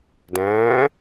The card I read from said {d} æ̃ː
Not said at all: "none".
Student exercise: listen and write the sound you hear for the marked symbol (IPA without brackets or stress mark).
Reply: d